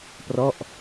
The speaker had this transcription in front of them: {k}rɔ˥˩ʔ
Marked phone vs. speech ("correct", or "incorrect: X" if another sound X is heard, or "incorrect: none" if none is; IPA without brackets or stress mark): incorrect: p